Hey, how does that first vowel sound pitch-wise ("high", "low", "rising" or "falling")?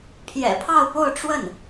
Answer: low